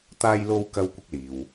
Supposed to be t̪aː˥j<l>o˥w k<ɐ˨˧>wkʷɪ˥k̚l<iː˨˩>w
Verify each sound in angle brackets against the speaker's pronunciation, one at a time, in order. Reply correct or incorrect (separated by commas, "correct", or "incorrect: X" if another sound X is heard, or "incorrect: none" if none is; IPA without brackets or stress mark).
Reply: correct, incorrect: ɐ˥, incorrect: iː˨